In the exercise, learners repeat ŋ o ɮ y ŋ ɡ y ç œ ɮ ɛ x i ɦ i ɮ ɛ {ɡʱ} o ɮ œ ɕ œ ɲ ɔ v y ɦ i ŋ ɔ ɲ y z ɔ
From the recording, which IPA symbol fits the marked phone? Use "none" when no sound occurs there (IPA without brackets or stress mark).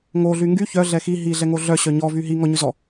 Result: ŋ